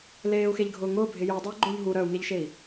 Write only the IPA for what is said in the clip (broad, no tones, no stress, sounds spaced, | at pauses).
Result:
l eː u̯ x e ʎ ɡʱ ʊː ŋ ʊː bʱ ɪ j u dˤ o u̯ ɡ͡ǃ ʊː ʎ ɦ u ɾ œ u̯ ŋ e ʎ ʃ e i̯